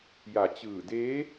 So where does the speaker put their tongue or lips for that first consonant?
palate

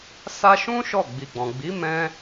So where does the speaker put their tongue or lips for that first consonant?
tongue tip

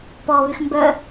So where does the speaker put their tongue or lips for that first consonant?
lips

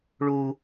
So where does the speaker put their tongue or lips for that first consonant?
retroflex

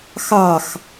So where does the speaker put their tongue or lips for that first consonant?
velum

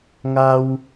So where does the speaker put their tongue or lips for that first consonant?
velum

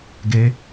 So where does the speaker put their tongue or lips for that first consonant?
velum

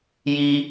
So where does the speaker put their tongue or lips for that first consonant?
palate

